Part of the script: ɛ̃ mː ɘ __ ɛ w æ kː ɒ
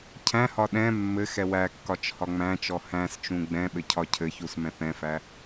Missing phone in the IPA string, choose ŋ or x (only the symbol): x